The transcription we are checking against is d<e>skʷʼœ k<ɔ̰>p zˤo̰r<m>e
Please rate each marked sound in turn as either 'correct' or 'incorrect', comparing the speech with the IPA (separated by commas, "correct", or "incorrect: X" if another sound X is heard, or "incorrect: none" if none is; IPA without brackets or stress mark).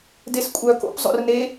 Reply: correct, incorrect: o̰, incorrect: n